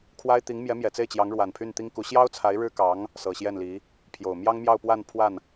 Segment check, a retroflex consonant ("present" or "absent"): present